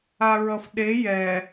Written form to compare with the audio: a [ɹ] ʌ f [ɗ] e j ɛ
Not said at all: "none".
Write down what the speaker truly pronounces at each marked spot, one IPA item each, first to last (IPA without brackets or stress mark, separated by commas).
ɹ, ɗ